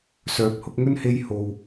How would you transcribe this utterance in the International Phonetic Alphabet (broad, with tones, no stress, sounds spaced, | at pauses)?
s œː˨˥ p̚ h ʊ˧ k̚ ŋ ɵ˥ n h e˧ j h o˨ w